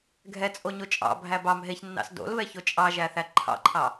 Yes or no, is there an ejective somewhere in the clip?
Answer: yes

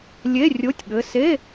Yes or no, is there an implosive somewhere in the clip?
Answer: yes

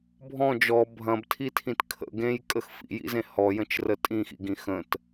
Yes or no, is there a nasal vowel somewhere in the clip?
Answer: yes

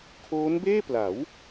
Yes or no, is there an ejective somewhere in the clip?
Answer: no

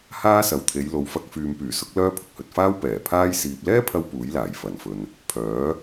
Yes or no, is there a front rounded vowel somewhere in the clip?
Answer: yes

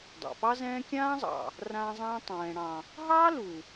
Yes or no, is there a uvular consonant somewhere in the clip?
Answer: no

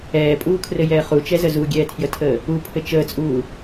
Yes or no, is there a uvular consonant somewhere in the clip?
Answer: yes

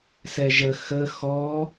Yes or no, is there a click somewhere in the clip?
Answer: no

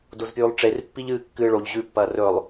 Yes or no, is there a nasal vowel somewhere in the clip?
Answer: no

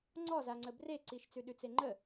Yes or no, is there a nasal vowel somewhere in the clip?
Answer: no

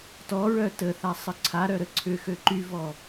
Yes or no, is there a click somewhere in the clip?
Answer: yes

